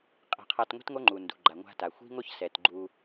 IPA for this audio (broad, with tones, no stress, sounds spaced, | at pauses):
qʼ i̤˨ qʰ a˧ t ŋʷ i̤˦ t ŋ o˦ ŋ͡ǃ u˨ n d ṳ˨ ɡ͡ǃ a˨ ŋʷ a̤˧ t a˨ xʷ i̤˦ ŋ o˦ ç s ɛ˨ t ɡ͡ǃ u˧